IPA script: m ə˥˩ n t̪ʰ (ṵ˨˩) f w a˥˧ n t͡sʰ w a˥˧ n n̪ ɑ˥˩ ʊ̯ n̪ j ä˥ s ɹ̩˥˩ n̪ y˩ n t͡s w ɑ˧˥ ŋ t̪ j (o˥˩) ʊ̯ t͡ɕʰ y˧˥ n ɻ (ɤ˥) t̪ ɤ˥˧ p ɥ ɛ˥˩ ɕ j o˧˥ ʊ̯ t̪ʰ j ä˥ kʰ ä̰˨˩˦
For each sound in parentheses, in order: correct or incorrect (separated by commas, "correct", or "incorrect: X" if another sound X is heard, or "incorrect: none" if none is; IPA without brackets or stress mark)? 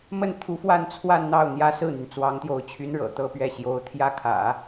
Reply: incorrect: u˧˥, incorrect: o˧˥, incorrect: ɤ̰˨˩